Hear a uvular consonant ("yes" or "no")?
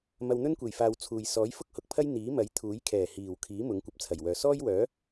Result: no